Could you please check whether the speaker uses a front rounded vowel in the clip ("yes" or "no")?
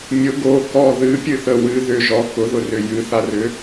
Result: yes